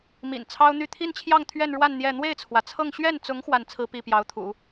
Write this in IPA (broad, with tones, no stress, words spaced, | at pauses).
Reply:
mḭ˨˩nt͡sʰɑ˥ʊ̯n̪y˥˧ t̪ʰi˥˧nt͡ɕʰjɑ˥˧ŋ t̪ʰɥɛ˥˧nɻwa˥˧n n̪jɛ˥˧ n̪we˥˩ɪ̯t͡sʰwä˩t͡sʰɤ˥˧ŋ ɕɥɛ˥˩nt͡sʊ˧˥ŋ xwa˥˩nt͡sʰɹ̩˥pi˥˩ pjɑ˧˥ʊ̯t̪ʰṵ˨˩˦